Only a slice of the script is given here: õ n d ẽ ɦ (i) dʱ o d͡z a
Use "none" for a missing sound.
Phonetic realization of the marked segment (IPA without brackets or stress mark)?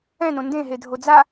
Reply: e